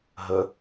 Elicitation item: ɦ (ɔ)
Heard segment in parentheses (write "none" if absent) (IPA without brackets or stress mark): ə